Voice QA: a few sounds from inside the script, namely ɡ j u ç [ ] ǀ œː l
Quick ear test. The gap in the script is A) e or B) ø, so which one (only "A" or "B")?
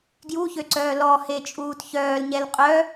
B